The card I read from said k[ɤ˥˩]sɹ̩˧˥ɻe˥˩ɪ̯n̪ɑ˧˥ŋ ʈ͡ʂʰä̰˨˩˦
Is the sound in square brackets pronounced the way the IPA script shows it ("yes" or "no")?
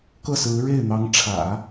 yes